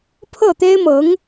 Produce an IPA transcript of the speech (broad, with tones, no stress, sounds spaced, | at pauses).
pʰ ɤ˥˩ t̪ e˥ ɪ̯ m ɤ˧˥ ŋ